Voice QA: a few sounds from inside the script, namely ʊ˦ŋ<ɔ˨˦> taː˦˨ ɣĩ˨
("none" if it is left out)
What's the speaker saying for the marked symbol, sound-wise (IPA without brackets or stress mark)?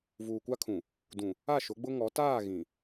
ɔ˨˦